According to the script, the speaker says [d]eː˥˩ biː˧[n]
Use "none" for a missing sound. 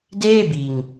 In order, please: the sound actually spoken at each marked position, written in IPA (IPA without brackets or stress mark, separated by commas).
d, ŋ